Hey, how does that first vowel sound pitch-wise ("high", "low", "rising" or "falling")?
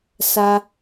high